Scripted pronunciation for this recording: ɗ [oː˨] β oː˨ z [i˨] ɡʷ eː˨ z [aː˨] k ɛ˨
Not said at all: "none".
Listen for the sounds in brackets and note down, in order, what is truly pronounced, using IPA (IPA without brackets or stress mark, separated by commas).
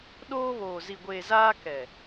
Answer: oː˦, i˨, aː˦